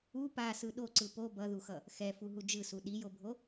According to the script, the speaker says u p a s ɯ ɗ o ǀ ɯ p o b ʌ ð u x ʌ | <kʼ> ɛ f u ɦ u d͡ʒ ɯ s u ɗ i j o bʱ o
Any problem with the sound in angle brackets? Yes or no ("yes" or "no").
yes